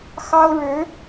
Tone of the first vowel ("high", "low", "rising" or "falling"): high